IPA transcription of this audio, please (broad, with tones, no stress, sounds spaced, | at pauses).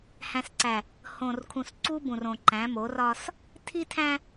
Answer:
h æ̃˨ s ǀ æ˨ | h õ˨ r kʰ ũ˨ s ǀ u˦ b ũ˨ r õ˨ ǃ æ̃˨˦ m o˨˦ r ɒ˦ s | tʰ i˦ tʰ æ̃˦